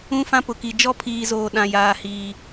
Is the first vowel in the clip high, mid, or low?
high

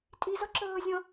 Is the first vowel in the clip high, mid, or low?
high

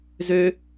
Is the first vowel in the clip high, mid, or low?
mid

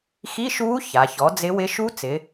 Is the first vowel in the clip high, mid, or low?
high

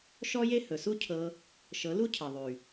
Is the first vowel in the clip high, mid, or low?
mid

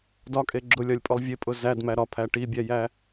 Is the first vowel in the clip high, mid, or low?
low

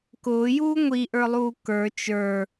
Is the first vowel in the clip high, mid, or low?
high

